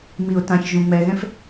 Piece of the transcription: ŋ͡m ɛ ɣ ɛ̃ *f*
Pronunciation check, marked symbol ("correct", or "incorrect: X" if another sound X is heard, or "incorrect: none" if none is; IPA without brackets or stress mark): correct